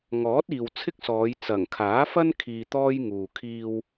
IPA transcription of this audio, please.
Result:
ŋ ɔː˨˥ t̚ iː˨ w t͡sʰ ɪ˥ k̚ s ɔː˨˧ j t͡s ɐ˨˩ ŋ kʰ aː˨˥ f ɐ˥ n kʰ iː˧ t̪ ɔː˥ j ŋ uː˨ kʰ iː˧ w

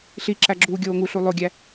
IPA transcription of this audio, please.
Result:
ɬ i ǁ æ ɡ͡ǁ uː ɡʲ oː ŋ u ɬ u lˠ o ɡʲ æ

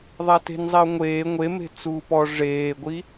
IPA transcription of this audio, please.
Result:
ðˤ a t e̤ n zˤ ɛ ʊ̯ ŋʷ eː ŋʷ e m e̤ t͡s uː p ɔ ʐ eː ɡʷ i

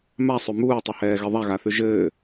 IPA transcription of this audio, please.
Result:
m a sˤ ʉ m uː tˤ ɘ h ɛː ɣ ɛ ðˤ a ɣ a θ ʉ ʒ ɘː

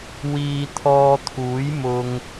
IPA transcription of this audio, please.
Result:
w iː˧ t̪ʰ ɔː˧ t̪ʰ uː˨˥ j m ʊ˧ ŋ

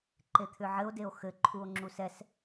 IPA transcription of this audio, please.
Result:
ǃ e t̪ʰ ʏ ʕ ɘ o̯ d e o̯ x ɘ ǃʰ u o̯ ŋ͡ǁ u s ɛ s

